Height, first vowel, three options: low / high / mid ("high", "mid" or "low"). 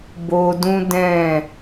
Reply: mid